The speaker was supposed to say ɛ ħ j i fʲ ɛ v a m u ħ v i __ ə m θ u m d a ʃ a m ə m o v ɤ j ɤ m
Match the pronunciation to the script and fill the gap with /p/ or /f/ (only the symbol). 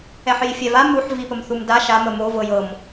p